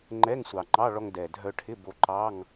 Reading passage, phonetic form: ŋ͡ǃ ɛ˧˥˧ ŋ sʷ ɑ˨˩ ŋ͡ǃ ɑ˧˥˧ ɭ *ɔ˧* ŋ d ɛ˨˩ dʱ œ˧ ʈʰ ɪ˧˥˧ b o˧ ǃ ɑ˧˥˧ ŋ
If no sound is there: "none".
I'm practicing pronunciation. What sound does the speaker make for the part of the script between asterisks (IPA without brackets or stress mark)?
ɔ˧